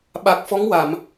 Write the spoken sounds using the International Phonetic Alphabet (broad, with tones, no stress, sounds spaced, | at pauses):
ɓ a˨˩ k̚ f ɔ˧˥ ŋ w a˨˩˨ m